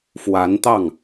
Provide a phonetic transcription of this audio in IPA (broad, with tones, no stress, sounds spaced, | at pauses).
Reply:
f w a˧˥ n t̪ ɑ˥˩ ŋ